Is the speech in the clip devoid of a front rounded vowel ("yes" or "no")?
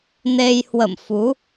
yes